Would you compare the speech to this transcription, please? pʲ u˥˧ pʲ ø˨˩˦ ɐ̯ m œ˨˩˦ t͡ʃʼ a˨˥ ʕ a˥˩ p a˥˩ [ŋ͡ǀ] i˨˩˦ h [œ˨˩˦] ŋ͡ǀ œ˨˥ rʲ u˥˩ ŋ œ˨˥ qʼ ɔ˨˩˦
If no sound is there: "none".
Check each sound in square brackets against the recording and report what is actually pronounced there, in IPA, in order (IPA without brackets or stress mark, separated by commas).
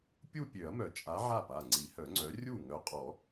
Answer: ŋ͡ǀ, œ˨˩˦